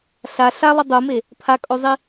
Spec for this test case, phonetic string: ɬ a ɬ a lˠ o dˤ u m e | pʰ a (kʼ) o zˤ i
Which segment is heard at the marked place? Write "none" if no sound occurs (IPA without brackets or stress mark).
kʼ